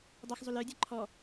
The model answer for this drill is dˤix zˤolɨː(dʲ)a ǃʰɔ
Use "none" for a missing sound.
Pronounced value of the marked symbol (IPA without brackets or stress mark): dʲ